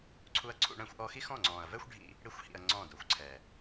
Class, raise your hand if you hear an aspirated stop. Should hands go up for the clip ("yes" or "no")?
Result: yes